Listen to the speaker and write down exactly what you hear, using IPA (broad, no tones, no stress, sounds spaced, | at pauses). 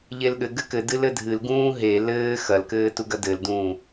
ʎ e l ɠ ɘ ɡ ɘ k ɘ d ɨ l ɘ dʱ ɨ l ɡ ũː ɦ e l ɘː x ɐ l k ɘː t u ɡ ɐ d ɘ l d ũː